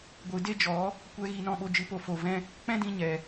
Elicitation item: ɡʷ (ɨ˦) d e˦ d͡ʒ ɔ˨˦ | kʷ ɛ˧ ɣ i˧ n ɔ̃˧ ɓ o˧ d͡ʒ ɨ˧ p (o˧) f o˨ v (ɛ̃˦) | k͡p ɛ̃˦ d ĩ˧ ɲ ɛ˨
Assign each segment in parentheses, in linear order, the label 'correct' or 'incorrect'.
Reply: incorrect, correct, correct

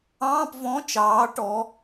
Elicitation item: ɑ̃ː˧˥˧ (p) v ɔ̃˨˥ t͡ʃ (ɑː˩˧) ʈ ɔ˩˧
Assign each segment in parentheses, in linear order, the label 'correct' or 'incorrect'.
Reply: correct, correct

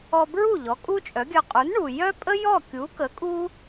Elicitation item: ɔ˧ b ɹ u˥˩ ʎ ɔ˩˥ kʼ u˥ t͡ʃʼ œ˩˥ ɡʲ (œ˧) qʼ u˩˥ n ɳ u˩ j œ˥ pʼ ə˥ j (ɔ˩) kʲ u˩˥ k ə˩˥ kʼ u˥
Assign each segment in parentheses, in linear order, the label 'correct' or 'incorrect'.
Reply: correct, incorrect

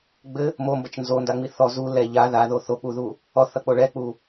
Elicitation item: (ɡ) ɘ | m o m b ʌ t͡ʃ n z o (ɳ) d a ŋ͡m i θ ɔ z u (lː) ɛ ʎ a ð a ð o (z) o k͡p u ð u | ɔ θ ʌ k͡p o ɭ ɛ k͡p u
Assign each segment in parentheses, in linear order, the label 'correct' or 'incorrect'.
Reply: incorrect, incorrect, incorrect, incorrect

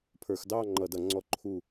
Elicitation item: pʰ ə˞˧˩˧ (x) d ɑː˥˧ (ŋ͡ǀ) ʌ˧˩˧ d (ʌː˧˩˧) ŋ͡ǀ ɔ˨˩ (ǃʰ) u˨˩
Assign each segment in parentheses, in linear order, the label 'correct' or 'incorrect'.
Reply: correct, incorrect, incorrect, correct

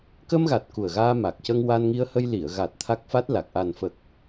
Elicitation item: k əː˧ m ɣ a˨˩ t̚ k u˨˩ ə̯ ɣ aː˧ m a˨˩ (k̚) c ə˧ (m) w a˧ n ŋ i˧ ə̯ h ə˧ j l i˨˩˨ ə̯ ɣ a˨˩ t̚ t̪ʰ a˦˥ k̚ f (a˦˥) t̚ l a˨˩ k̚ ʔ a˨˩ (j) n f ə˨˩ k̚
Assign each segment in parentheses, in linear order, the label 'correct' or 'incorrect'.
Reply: correct, incorrect, correct, incorrect

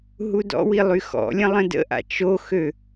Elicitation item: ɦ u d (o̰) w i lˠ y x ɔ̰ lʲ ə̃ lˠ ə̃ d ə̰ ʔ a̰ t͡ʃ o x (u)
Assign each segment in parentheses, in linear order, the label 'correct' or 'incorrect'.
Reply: incorrect, incorrect

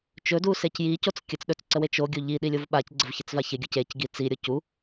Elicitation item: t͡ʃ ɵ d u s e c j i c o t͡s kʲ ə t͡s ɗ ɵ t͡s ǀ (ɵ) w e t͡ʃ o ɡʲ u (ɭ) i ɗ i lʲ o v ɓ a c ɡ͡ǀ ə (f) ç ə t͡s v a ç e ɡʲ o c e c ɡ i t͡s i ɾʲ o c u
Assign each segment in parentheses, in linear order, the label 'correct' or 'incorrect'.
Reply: incorrect, incorrect, incorrect

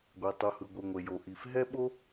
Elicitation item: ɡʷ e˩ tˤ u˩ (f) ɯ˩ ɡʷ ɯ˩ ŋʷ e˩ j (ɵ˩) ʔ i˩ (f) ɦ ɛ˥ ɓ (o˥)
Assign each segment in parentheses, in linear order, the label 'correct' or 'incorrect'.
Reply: incorrect, incorrect, correct, correct

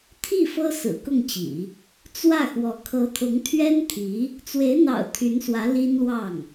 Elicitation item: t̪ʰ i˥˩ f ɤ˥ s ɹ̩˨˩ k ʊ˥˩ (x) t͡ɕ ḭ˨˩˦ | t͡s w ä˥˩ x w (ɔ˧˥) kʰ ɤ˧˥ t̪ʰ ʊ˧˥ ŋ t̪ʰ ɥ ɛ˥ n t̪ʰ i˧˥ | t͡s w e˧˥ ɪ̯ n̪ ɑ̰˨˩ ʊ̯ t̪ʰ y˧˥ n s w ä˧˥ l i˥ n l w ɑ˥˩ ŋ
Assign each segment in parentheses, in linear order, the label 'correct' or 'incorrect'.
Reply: incorrect, correct

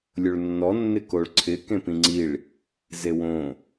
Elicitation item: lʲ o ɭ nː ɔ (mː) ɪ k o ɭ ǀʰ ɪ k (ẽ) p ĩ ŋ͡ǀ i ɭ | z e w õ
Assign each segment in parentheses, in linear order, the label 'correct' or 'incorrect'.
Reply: incorrect, correct

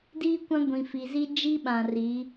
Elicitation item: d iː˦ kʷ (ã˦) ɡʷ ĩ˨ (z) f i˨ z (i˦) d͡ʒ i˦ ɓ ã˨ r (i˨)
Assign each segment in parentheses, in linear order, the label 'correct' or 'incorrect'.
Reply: correct, incorrect, correct, incorrect

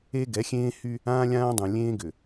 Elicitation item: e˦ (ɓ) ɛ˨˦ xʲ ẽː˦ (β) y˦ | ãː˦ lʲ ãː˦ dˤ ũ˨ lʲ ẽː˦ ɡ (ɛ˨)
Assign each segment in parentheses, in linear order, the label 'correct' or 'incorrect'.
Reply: incorrect, incorrect, incorrect

